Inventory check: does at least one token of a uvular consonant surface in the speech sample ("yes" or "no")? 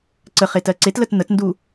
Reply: yes